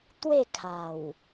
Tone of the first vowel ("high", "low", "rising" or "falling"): falling